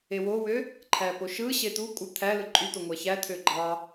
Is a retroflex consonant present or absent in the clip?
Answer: absent